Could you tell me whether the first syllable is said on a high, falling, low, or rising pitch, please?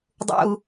low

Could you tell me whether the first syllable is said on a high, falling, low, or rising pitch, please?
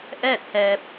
falling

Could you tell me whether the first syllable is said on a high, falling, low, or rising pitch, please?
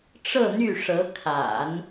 falling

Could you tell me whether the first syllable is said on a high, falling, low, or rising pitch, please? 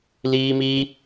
high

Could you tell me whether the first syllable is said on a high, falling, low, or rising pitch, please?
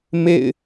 falling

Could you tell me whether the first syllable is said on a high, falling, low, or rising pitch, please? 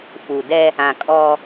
low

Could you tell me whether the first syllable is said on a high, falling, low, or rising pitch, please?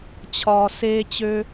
low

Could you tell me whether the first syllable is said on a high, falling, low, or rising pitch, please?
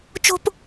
high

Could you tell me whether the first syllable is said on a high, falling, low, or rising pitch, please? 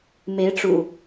rising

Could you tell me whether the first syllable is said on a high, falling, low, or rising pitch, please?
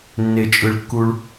low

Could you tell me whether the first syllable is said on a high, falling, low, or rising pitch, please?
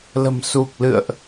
low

